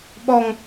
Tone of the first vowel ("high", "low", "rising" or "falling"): high